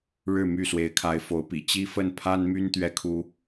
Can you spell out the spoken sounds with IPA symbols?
ɻ ɻ̩˥˨ m y˥˨ s w e˨˦ ɪ̯ kʰ a˨˦ ɪ̯ f o˨˦ ʊ̯ p ḭ˨˩ t͡ɕ i˦ f ə˥˨ n pʰ a˦ n m y˦ n t̪ ɥ ɛ˨˦ kʰ u˨˦

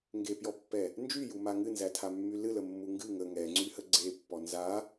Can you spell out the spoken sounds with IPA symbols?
ŋ ɡ e p j ɔ pː ɛ | n d͡ʒ y j u m a ŋ ɨ n z æ tʰ a mː y l ɨ l ə mː u ŋ ɡ ɨ ŋ ə ŋ ɛ ŋ͡ǀ y h ə ɡ͡ǀ e pː ɔ n z a

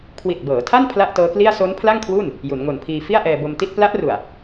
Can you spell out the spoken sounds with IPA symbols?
kʰ w i˨˩ t̚ b ɤː˩˦ tʰ a˥˩ n pʰ l a˥˩ ʔ t ɤː˦˥ k l i˥˩ a̯ s o˦˥ n pʰ l a˥˩ ŋ kʰ w uː˥˩ n | j u˩˦ n ŋ o˨˩ n pʰ iː˧ f i˥˩ a̯ ʔ ɛː˧ b o˧ m t i˥˩ t̚ p l a˦˥ ʔ r u˨˩ a̯

